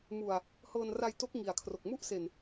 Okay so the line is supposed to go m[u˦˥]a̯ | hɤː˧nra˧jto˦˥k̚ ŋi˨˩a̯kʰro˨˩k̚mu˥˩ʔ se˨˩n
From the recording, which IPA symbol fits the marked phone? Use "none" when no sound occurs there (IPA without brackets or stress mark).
u˨˩